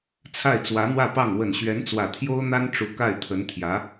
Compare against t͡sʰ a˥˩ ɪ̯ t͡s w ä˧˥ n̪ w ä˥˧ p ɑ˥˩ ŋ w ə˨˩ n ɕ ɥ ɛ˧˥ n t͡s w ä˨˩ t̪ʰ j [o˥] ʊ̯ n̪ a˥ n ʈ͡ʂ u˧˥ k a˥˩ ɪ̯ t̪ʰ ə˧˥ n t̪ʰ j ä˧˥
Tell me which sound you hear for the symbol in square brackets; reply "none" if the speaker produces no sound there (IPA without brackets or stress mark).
o˥